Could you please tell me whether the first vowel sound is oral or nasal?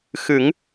oral